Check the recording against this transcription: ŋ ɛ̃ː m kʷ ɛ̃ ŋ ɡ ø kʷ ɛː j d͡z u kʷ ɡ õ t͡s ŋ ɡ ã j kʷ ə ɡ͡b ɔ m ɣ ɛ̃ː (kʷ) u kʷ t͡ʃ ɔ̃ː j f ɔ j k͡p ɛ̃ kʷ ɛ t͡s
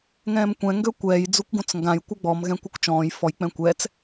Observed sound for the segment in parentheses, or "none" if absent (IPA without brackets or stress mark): kʷ